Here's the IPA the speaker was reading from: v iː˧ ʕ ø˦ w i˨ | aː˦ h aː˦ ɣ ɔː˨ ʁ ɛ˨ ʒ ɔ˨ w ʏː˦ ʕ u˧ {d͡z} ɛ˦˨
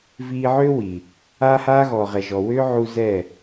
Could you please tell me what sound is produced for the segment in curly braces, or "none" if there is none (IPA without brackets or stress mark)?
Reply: z